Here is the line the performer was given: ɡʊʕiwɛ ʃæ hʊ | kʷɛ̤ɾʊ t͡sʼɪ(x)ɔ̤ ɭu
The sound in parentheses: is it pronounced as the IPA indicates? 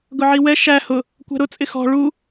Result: yes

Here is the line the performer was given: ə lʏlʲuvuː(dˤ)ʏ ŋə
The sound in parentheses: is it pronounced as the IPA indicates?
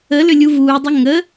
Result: yes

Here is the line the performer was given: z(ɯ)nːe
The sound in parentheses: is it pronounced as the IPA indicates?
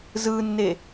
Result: yes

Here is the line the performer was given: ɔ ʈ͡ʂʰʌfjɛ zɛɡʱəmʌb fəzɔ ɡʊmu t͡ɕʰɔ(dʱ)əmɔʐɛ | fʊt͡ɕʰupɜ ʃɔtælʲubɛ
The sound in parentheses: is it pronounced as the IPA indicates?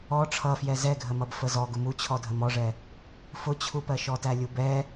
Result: yes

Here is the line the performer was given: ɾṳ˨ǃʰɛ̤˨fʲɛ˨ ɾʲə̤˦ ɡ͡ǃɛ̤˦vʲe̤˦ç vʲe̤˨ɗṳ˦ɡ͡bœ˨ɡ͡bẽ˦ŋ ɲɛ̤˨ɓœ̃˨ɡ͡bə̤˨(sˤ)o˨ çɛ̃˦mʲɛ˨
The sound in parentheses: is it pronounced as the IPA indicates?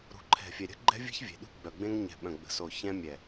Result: no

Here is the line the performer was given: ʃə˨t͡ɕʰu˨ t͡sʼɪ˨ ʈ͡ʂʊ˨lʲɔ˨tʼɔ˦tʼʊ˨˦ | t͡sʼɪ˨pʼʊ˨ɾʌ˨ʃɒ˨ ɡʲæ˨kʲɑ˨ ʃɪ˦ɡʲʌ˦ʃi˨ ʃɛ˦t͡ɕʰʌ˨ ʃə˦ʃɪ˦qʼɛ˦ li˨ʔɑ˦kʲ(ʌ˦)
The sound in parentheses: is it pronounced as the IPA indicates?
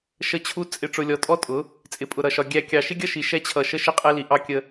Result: no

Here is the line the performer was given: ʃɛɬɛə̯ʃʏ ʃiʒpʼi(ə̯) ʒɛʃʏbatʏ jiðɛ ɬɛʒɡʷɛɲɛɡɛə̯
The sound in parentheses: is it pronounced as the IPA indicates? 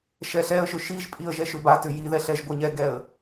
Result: yes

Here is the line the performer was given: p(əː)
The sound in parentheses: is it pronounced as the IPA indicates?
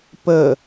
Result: yes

